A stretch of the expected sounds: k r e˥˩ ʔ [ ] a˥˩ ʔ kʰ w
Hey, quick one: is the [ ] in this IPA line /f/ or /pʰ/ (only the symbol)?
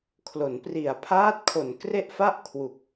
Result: f